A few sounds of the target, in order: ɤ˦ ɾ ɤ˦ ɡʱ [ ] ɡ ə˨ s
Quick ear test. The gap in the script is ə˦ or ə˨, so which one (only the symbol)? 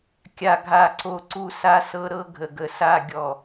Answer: ə˨